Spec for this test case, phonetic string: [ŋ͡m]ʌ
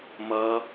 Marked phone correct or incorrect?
incorrect: m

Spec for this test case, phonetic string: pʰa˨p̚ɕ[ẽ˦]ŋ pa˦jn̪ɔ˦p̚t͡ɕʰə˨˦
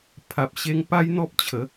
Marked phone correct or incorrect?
incorrect: e˦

